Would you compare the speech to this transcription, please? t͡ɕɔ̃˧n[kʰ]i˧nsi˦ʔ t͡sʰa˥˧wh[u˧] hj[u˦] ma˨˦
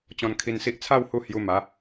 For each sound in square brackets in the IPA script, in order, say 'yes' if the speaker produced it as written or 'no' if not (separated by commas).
yes, yes, no